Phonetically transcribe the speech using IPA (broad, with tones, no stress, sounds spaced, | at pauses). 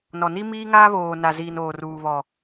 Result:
n ɔ˨ n i˦ m iː˦ ŋ aː˦ β oː˨ n a˨ z iː˨ n oː˨ r uː˨ β ɔ˨